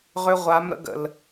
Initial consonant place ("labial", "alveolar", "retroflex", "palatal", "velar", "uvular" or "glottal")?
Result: uvular